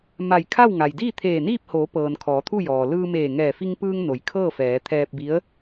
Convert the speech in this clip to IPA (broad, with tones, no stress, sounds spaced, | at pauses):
m a˧˩ j kʰ a˥˨ w ŋ a˩ j d iː˥˨ t̪ʰ eː˧˩ n iː˥˨ p̚ h oː˩˧ p ɤː˩ n kʰ ɔː˩˧ t̪ʰ u˥˨ j ɔː˩ l ɯː˧ m eː˧˩ ŋ ɛː˧˩ f i˧ ŋ p ɯː˧ ŋ n o˩˧ j kʰ ɤː˥˨ f ɛː˩˧ t̪ʰ ɛː˧ p̚ b i˧˥ ə̯